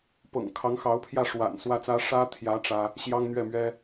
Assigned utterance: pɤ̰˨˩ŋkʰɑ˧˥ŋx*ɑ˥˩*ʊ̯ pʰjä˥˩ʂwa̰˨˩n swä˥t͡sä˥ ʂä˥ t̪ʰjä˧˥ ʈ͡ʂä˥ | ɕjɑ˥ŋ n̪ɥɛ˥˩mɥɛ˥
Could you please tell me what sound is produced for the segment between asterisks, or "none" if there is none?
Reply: ɑ˧˥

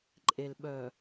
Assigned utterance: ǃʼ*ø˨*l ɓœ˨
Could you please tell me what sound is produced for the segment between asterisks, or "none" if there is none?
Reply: e˨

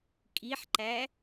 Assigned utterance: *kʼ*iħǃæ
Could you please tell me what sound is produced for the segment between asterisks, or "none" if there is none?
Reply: kʼ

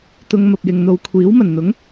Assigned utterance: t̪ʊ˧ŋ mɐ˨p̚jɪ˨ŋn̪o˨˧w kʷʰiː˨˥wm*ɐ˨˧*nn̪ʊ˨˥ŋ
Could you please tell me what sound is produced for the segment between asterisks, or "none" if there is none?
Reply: ɐ˨˩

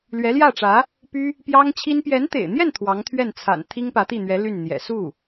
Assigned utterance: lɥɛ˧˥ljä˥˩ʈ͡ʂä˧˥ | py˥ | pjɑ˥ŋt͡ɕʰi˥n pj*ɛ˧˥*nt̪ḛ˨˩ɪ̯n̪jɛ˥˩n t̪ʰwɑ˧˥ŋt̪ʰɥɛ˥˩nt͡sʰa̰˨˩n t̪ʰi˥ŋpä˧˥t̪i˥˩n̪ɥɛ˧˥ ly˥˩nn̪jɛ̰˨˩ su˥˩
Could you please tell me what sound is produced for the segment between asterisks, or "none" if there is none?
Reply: ɛ˧˥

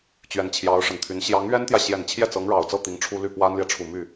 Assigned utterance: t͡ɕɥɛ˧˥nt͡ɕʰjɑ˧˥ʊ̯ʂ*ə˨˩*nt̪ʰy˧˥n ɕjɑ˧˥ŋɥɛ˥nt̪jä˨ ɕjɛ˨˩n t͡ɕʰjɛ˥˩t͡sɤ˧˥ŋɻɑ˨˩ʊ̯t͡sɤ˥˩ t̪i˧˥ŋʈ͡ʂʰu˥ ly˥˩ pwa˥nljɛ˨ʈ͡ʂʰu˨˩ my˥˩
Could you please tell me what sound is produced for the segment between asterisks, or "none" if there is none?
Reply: ə˨˩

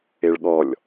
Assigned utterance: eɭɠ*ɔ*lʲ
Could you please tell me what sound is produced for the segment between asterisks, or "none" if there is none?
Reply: ɔ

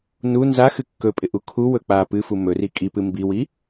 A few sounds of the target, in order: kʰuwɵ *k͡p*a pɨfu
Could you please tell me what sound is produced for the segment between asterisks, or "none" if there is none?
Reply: k͡p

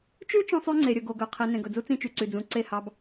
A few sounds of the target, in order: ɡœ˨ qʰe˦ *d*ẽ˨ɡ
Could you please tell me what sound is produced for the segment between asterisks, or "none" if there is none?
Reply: n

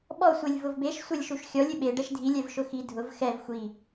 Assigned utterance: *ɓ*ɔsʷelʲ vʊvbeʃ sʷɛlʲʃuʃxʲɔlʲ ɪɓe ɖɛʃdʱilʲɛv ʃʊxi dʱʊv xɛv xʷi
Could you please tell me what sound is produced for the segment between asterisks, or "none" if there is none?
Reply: ɓ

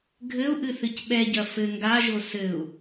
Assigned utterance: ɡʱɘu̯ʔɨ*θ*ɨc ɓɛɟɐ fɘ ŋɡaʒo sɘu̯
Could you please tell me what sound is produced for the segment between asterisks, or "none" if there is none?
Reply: θ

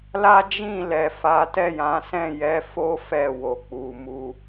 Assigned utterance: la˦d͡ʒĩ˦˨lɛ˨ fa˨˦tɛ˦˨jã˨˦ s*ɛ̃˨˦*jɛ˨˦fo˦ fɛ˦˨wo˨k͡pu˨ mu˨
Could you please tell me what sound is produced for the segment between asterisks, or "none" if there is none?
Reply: ɛ̃˦˨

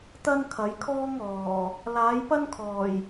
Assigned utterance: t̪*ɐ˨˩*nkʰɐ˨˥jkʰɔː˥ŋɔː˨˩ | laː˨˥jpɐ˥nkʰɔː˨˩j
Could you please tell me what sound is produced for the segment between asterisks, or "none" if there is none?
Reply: ɐ˥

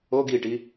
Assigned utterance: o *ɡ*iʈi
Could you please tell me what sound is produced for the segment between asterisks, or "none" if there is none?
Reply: ɡ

